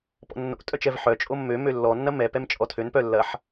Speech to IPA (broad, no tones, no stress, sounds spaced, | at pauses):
p ɔ̰ nː o̰ tʼ œ t͡ʃ ɛ v ħ œ t͡ʃʼ o mː ø m ø lː ɔ nː ɐ m ɛ p ɛ m t͡ʃʼ ɔ tʰ ø n p œ lː ɐ ħ